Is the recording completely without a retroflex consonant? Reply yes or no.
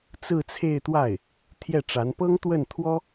no